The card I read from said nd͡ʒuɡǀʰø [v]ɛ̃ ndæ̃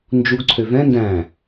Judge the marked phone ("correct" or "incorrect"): correct